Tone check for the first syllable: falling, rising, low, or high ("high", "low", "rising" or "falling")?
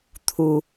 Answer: high